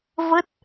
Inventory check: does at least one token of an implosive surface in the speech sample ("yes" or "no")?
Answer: no